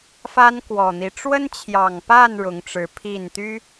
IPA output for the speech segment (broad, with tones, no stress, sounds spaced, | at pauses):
f a˦ n k w ɔ˨˩ n̪ i˦ ʈ͡ʂ w ə˦ n t͡ɕʰ j ɑ˨˩ ŋ p a˥˨ n ɻ ʊ˨˦ ŋ ʈ͡ʂ ɻ̩˨˦ pʰ i˥˨ n t̪ y˦